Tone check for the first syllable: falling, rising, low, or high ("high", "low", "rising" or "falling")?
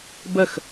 falling